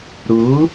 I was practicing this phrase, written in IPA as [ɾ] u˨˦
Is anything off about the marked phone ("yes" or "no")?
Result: no